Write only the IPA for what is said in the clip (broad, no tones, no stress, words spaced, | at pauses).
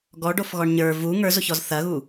ɡɔɖofɣɔɳ ɲə˞ vu ŋə˞zoçɔz θɐɣu